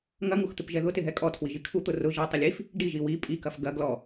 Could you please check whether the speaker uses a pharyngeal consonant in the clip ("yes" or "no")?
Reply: no